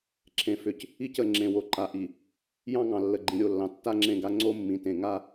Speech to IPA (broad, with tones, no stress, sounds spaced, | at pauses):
ǁʰ ẽ˨ f ʏ˨ c | i˦ c ə˨ ŋ͡ǁ ẽ˨ w o˨ ǃ a˨ ʔ i˨ | j ɑ̃˦ ŋ ɑ̃˨ lː ə˨ ɡ͡ǃ ĩ˨ ɾʲ o˦˨ lː ɑ̃˨ tː a˦ ŋ͡ǁ ẽ˦˨ ɡ a˦ ŋ͡ǀ o˦ mː ĩ˨ t ẽ˨ ŋ a˦